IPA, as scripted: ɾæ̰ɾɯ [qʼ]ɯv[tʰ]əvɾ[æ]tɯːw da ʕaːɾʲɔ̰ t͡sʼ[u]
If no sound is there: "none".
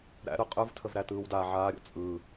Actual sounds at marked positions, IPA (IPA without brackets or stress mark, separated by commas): qʼ, tʰ, æ, ɯ